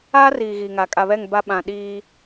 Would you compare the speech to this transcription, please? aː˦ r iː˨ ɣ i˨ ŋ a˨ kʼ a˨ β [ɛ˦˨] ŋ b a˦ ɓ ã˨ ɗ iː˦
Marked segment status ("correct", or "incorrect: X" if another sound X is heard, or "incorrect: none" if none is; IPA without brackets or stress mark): correct